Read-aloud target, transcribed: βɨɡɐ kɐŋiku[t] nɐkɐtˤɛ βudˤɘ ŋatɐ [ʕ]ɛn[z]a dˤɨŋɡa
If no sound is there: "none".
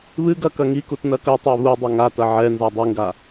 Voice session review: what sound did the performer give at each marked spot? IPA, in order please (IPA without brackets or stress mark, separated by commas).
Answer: t, ʕ, z